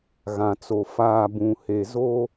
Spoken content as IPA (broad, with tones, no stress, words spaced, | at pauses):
ɣã˨t͡so˨ faː˨ bũ˨he˨ zo˦